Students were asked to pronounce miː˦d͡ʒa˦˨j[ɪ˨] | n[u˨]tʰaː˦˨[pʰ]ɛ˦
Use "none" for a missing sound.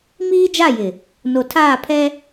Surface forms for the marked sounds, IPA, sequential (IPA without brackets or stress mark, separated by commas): ɪ˨, o˨, pʰ